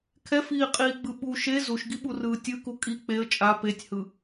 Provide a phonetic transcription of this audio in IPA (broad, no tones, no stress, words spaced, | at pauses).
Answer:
kʰɛfiːqʼiːɡ͡bɯ ɓu ʃe zuʃɡiɓurɯː tʲɯku kʼi k͡peə̯ t͡ʃʼa petʲhɯ